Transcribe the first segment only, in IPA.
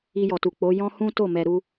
i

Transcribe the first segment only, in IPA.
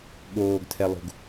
ɠ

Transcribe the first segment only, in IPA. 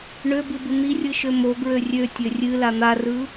ɳ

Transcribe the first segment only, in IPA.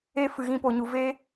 e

